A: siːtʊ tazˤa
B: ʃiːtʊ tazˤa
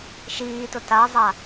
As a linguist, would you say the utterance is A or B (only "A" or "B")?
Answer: B